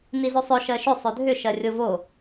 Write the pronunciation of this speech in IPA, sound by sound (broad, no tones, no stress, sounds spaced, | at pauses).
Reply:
n i z o sˤ ɵ ʃ ɜ ʃ ʏ sˤ ɵ dʱ ʏ ʃ ɜ rʲ o v o